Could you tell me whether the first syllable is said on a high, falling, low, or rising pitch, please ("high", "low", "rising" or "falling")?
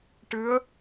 rising